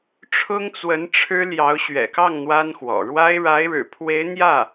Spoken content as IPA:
ʈ͡ʂʰ ʊ˥ ŋ t͡s w ə˧˥ n ʈ͡ʂʰ ɻ̩˥ l j ɑ˧˥ ʊ̯ ɕ ɥ ɛ̰˨˩ k ɑ˥˩ ŋ n̪ w a˥ n x w ɔ̰˨˩ ɻ w a˥ ɪ̯ ɻ a˧˥ ɪ̯ ɻ ɻ̩˨˩ pʰ w e˧˥ ɪ̯ n̪ j ä˥˩

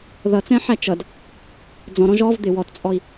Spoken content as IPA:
ð ʌ t͡s ɛ̃ ħ æ t͡ʃ ʌ d | d͡z ɔ̃ ɾ ɔ̃ ʒ ɔ v d̪ ɪ w ɔ t t͡sʼ ɔ i̯

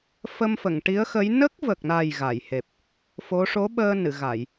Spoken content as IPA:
f ə˧ m f ə˨˩˨ ŋ ʈ i˧˥ ə̯ x ə˧˥ j n ə˦˥ k̚ v ə˨˩ k̚ n a˨˩ j ɣ a˨˩˨ j h e˨˩ p̚ | f o˧˥ ʂ o˧˥ ɓ əː˧ n ɨ˨˩˨ ɣ a˨˩˨ j

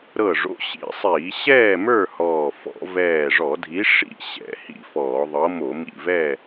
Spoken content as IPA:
ɾ ɤ˧˩ ʐ o̰˨˥ ɕ ḭ˧˩˧ sˤ iː˧˩˧ ɕ ɛː˥˨ m ə˞˥˨ h ɔː˧˩ f ɔ̰˧˩˧ v ɛː˧˩ ʐ ɔ˧˩˧ dʱ i˨˥ ʂ ḭ˥˨ ɕ ɛ̰˧˩˧ h ḭ˧˩˧ f ɔː˧˩˧ ðˤ ɤ˨˥ m o˧˩˧ m ḭ˧˩ v ɛ˥˨

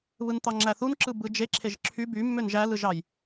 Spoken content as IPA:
β ɯ n t̪ ɑ ŋ͡ǁ æ θ u n ǁ ɯ b ɯ d͡ʒ e ǁʰ e ʒ ǁʰ y b y mː ø n ʒ æ l ɯ ʒ ɑ j

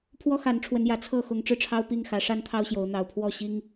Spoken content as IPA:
pʰ w ɔ˦ x a˨˦ n ʈ͡ʂʰ w ə˨˦ n j ä˨˩ t͡sʰ ɤ˥˨ x ʊ˨˦ ŋ ʈ͡ʂ ɻ̩˧ ʈ͡ʂʰ ɑ˦ ʊ̯ p i˥˨ ŋ x ä˨˦ ʂ a˦ n t̪ʰ ɑ˦ ʊ̯ ɕ j o˨˦ ʊ̯ n̪ ɑ˨˩ ʊ̯ pʰ w ɔ˥˨ ɕ i˦ ŋ

